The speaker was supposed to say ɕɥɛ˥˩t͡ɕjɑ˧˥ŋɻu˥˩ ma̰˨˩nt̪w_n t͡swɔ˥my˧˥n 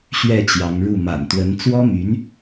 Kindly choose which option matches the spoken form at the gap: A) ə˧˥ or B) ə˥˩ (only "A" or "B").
A